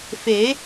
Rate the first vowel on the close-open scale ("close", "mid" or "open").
mid